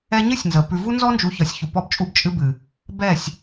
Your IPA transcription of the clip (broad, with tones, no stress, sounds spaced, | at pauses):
ɛ˦ ɲ ɨ˦ sʲ n z ə˨ p ʉ˨ v u˦ n z ɔ˦ n d͡ʒ u˨˦ ç ɒ˨ sʲ ç u˨ p ɔ˦ b t͡ʃʼ u˦ b t͡ʃʼ ɨ˦ b ɨ˨ | b ɛ˦˨ sʲ